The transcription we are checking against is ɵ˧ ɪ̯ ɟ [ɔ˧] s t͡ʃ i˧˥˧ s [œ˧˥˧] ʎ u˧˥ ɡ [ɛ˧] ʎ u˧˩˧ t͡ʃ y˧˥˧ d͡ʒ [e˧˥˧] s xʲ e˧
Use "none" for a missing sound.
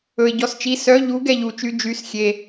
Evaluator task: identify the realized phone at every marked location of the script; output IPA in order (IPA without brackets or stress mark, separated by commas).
ɔ˧, œ˧˥˧, ɛ˧, y˧˥˧